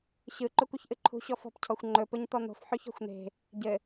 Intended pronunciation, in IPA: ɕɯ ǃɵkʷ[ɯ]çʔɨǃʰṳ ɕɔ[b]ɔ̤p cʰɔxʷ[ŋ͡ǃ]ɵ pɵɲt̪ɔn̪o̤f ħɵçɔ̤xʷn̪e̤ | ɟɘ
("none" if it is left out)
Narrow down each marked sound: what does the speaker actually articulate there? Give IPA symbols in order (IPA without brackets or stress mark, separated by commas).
ɯ, f, ŋ͡ǃ